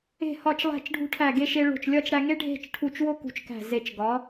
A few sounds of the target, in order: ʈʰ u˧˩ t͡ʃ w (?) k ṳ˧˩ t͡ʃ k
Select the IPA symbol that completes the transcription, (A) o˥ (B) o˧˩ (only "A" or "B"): A